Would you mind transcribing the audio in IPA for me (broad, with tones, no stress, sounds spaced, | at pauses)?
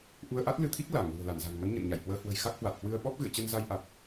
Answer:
ʔ u˧ ə̯ ʔ a˦˥ t̚ l ɨ˧ t̪ʰ i˦˥ k̚ l a˧˩ ŋ l ṳ˨˩ ə̯ l a˧˩ n z a̤˨˩ ŋ m ə˨˦ n ɲ ə̰˧˨ n ɲ a̰˧˨ j h w əː˧ h w ə̤˨˩ j x a˦˥ k̚ h w a˨˩ t̚ h w ɨ˧ ə̯ ɓ ɔ˦˥ p̚ ɣ ɨ̰˧˨ ə̯ t͡ɕ ə˧ n z a˧ j ʔ a˨˩ t̚